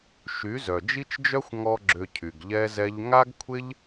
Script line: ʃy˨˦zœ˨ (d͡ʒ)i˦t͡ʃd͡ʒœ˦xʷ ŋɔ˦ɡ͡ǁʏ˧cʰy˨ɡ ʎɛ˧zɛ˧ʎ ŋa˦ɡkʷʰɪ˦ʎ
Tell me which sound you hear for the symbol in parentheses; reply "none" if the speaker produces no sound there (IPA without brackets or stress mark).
d͡ʒ